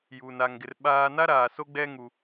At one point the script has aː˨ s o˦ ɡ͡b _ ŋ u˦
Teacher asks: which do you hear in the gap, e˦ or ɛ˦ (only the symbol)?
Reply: ɛ˦